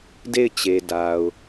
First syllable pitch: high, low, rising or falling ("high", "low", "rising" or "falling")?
falling